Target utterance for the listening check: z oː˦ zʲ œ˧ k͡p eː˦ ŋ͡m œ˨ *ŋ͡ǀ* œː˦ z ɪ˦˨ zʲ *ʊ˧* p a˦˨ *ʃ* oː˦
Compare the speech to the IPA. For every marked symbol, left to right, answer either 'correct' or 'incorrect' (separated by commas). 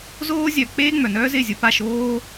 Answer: incorrect, correct, correct